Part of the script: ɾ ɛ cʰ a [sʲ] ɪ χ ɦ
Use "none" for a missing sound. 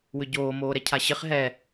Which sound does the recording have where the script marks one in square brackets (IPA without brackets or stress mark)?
ɕ